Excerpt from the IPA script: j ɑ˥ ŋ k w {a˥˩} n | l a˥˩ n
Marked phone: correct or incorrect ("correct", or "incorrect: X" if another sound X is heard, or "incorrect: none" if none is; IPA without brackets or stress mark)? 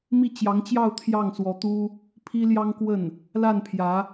incorrect: ə˥˩